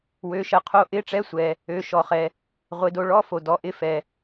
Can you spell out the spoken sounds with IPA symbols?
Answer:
wø˨˦ʃɜ˨˦qʰo˧˥˧ ʔɪ˧˥˧ʈ͡ʂɛ˧˥˧sʷɛ˨ | ø˨˦ ʃɔ˨χɛ˨ | ʁʷɪ˨˦do˨˦ɭɔ˧˥˧ fo˨dɔ˨˦ʔɪ˧˥˧ fɛ˨

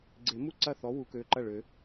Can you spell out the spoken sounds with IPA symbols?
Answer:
ɡ͡ǀe˨˩˦mu˥˩ ǀɐ˥˩θɔ˨˥ wu˨˩˦kø˩˧˩ǃɐ˥˩ɭø˨˩˦

